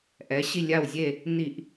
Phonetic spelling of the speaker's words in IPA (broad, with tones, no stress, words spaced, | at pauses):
ʔɛ˩˧ɕi˧˩lʲa˧˩wzʲe˧˩ | ni˧˩˧ʔ